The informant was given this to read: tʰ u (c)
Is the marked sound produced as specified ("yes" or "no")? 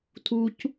yes